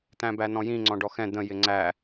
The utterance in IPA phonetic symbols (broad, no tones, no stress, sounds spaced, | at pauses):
t̪ æ̃ b æ n ɔ̃ j ĩ ŋ͡ǀ ɔ̃ ɖ ɔ x ɛ̃ d̪ ə̃ j ɪ ŋ͡ǀ æ